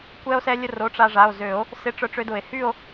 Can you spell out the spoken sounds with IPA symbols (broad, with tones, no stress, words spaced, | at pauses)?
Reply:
kʷɛ˧o̯sɛ˧lʲə˧ro˩˧˩ ʈ͡ʂa˧ʐa˩˧˩o̯ zø˨˩˦o̯ | sɪ˧ʈ͡ʂœ˧ʈ͡ʂø˧dʊ˨˩˦e̯ hy˥˧o̯